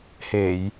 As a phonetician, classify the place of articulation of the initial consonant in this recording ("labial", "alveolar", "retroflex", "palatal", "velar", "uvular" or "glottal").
glottal